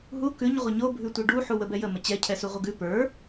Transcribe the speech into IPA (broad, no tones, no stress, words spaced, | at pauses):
ɦu kʉɲ ʁʷəɲo bʱʉtʷɛɖu ħuwəbɛjə mət͡ɕɛ cʰɛsuʁʷəɡʉ pə˞